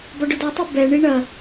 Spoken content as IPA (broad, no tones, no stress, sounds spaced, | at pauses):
b ɒ ɖ ʊ d ɒ tˤ o b ɛ ɳ i ɳ ɐ